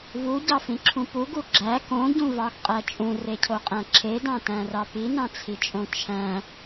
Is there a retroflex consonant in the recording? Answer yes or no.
no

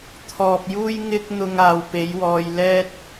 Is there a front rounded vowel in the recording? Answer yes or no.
no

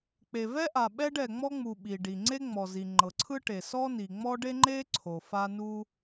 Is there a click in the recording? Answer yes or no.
yes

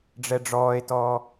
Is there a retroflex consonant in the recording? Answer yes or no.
yes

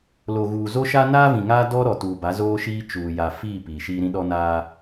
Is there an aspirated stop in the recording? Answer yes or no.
no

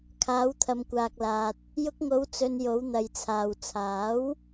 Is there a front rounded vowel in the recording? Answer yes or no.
no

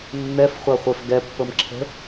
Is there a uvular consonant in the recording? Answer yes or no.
yes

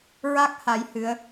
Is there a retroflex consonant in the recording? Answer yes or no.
no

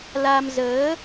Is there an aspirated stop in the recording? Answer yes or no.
no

